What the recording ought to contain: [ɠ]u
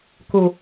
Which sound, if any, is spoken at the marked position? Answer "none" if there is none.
k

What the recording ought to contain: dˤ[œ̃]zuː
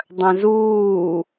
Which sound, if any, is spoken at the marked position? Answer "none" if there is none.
œ̃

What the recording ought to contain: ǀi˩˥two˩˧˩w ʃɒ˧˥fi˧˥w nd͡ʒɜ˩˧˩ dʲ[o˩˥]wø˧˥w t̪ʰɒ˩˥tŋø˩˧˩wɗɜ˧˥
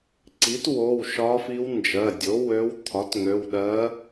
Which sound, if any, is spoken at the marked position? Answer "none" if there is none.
o˩˥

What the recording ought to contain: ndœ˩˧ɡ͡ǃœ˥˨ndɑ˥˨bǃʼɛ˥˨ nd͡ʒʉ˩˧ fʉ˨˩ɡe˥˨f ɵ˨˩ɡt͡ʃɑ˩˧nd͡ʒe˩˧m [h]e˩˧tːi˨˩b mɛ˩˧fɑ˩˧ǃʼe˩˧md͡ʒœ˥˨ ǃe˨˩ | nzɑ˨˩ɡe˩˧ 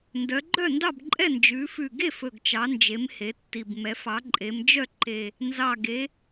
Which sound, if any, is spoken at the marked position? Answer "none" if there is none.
h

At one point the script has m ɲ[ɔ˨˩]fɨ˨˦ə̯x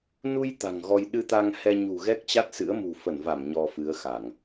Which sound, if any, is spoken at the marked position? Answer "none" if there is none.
ɔ˧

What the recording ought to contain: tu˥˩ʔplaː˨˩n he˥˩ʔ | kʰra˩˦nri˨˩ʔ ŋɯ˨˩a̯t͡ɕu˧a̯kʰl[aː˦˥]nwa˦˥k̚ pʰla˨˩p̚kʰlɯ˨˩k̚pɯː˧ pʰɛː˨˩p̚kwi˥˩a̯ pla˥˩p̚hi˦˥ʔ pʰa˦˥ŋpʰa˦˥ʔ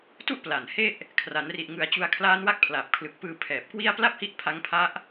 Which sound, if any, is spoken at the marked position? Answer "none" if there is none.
aː˦˥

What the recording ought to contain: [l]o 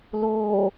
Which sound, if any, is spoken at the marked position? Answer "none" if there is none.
l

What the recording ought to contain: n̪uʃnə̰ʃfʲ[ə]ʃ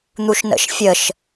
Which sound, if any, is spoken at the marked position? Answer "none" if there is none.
ə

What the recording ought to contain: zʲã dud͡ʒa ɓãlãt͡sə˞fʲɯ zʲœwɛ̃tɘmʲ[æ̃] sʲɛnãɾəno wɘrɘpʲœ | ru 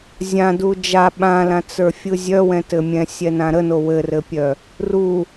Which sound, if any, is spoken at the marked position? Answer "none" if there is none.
ɛ̃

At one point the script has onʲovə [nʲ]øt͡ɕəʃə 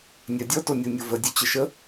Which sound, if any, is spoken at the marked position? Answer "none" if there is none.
dʲ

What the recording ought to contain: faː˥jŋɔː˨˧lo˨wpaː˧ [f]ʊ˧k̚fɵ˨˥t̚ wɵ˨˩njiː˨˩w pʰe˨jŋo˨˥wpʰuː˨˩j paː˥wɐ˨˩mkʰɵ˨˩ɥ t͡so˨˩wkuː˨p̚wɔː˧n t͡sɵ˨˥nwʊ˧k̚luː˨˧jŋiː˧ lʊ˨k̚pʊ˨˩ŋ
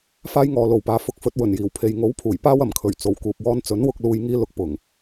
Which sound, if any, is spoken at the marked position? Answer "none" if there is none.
f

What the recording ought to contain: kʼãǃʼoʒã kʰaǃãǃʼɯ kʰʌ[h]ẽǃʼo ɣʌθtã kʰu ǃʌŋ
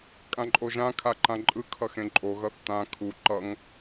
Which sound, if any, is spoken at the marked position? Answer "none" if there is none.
x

